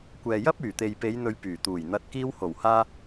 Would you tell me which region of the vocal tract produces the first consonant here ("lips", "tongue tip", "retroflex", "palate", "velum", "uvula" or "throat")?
velum